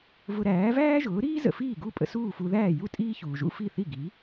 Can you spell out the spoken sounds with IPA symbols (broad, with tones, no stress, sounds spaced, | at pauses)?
v ʊ˧ ɾ æː˩˥ v æː˥ ʒ ʊː˩˥ ɾ iː˥ z ə̰˩ f iː˥˩ ɡ u˥˩ pʼ ə̰˧ s uː˥˩ f u˧ ð æː˥˩ j u˥˩ tʼ iː˥ ç uː˩ ʒ ṵ˥ f i˥˩ θ i˥˩ ɡ i˩˥